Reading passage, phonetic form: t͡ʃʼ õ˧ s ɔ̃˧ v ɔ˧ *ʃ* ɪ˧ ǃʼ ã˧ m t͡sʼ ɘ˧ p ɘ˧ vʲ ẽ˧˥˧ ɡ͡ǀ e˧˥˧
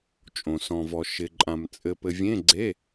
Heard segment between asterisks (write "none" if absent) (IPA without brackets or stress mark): ʃ